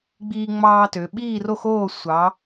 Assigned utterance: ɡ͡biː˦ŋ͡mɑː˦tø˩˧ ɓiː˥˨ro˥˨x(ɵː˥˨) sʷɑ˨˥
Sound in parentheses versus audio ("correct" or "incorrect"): incorrect